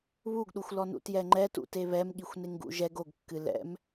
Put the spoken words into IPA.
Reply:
β u ɡ ɗ u xʷ l ɔ n ṵ t j ɛ ŋ͡ǃ ɛ t ṵ t e β ɛ m ɠ i xʷ n e ŋ ɡ ṵ ʒ ɛ ɡ o ɡ kː ɨ l ɛ̰ m

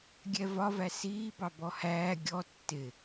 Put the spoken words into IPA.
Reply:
ɡʲ ɛ v ɒ v æ s iː b ɑ b ɔ h æː ɡʲ ɔ tː ɪ

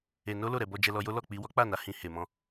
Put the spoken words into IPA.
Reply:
e˧ n o˦ l o˦˨ ɾ ɛ˧ b ɔ˧ d͡ʒ ɛ˧ l ɔ˧ j o˦ l ɔ˦˨ k͡p i˧ w ɔ˦ k͡p a˦˨ n a˨˦ h ĩ˧ h e˨ m ɔ̃˧

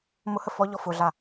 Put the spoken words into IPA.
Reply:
m ʊ h ə f ɔ ʎ ɔ f ʊ ɮ a

